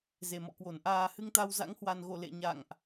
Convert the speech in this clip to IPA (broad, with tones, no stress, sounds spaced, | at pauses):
z e˨˩ m ɔ̰˧˨ k w o˧˩ n ʔ aː˧ h ɨ˧ ŋ t̪ a˧ w z a̰˧˥ ŋ h w a˨˩ n ɣ o˧˩ l ḛ˧˨ ɲ a̰˧˨ ŋ ʔ